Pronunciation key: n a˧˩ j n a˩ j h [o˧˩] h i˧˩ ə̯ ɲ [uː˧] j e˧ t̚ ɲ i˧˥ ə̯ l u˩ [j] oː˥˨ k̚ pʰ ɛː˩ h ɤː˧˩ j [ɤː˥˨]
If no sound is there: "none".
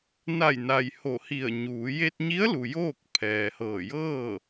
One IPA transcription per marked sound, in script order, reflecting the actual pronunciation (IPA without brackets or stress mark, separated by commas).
o˧˩, uː˩˧, j, ɤː˥˨